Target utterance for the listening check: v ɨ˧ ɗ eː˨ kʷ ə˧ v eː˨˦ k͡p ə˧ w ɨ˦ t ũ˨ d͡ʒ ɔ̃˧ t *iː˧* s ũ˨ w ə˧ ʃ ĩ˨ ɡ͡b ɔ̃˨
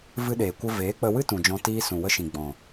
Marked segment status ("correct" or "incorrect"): correct